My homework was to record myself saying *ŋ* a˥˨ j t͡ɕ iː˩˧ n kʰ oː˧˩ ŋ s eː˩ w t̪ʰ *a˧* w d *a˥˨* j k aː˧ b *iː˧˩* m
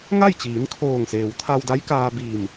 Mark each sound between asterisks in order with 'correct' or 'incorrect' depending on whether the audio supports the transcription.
correct, correct, incorrect: a˧˥, correct

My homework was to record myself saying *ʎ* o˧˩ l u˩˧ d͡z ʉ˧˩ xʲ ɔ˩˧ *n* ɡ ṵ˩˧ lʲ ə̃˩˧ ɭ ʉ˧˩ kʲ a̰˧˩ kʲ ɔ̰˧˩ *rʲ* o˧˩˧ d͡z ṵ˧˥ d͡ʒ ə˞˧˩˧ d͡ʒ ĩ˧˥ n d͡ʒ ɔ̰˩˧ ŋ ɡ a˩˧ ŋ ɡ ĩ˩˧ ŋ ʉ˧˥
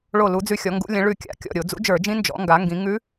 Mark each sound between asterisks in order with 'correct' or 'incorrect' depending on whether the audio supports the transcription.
incorrect: ɭ, incorrect: ŋ, incorrect: ɾʲ

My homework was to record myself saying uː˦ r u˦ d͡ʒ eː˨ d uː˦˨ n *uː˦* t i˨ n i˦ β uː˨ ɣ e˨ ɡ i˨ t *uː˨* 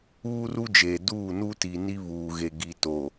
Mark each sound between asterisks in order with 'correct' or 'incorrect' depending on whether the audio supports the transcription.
incorrect: u˦, incorrect: oː˨

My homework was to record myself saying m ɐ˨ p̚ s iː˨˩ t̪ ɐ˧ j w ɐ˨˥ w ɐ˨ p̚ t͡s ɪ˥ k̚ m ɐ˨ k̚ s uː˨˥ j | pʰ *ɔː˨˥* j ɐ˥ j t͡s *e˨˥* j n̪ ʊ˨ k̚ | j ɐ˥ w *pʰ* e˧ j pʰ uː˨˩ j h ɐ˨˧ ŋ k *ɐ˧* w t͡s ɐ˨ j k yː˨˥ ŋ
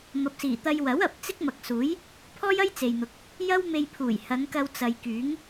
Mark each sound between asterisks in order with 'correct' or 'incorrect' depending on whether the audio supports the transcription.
incorrect: ɔː˥, incorrect: e˨, incorrect: m, correct

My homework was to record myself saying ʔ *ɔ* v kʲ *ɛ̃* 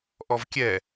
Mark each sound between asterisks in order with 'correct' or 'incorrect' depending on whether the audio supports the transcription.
correct, incorrect: ɛ

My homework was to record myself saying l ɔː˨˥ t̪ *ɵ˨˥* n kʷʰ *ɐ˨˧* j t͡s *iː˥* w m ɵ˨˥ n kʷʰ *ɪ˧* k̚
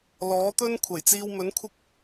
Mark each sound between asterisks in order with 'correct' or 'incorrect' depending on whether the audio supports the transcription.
incorrect: ɵ˥, incorrect: ɐ˨˩, incorrect: iː˧, incorrect: ɪ˥

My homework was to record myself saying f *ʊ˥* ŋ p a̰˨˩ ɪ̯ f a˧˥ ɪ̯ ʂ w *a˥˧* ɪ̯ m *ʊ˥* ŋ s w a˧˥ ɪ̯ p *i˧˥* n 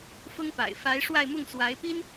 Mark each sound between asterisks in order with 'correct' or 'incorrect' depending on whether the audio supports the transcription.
correct, correct, incorrect: ʊ˥˩, incorrect: i˥

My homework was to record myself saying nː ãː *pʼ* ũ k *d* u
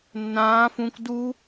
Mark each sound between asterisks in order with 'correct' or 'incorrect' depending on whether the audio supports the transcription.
incorrect: f, correct

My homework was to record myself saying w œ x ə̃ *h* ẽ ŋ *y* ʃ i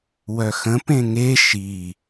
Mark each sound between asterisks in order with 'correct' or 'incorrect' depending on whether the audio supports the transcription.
incorrect: p, incorrect: e

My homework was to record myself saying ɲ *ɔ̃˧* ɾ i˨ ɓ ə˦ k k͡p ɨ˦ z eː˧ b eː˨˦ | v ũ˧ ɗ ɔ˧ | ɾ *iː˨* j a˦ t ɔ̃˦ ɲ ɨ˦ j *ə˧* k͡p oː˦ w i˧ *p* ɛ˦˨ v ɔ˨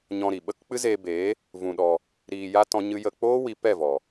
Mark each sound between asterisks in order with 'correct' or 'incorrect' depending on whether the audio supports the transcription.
correct, incorrect: iː˧, correct, correct

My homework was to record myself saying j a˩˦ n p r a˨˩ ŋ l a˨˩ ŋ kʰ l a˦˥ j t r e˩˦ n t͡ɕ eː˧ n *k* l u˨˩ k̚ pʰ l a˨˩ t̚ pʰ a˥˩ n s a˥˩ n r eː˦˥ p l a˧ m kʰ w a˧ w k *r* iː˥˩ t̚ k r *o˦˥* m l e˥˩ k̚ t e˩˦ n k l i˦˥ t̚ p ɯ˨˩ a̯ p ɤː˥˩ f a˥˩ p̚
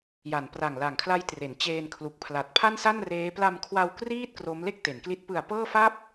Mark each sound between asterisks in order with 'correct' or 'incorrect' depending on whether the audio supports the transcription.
incorrect: kʰ, correct, correct

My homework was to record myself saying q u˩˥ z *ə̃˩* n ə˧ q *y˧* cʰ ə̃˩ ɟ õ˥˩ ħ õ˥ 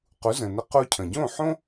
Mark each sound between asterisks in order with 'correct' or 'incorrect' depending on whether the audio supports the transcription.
correct, incorrect: u˧

